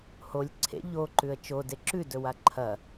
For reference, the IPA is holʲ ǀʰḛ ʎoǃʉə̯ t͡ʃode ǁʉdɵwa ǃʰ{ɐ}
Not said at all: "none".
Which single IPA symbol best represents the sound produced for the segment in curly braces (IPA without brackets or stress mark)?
ɐ